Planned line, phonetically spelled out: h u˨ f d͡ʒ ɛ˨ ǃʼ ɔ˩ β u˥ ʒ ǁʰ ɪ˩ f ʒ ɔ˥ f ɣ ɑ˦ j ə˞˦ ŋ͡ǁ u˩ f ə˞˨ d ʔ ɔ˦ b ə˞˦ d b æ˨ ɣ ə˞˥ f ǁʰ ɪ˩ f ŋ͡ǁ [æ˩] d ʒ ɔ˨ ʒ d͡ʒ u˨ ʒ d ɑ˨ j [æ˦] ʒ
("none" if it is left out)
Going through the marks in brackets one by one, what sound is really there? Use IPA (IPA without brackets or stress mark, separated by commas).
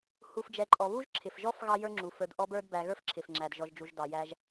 æ˩, æ˦